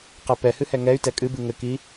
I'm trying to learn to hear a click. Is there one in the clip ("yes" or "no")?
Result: no